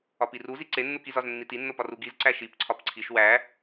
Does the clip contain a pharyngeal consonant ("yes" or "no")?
no